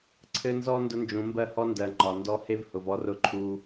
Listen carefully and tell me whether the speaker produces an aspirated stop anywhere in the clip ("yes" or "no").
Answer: yes